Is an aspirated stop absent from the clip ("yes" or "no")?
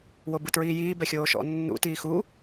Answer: yes